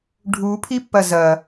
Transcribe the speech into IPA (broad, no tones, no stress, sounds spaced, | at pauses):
ɖʱ u pʰ i pː ɐ z ɐ